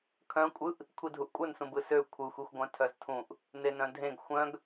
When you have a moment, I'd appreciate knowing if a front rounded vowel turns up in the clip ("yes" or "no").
yes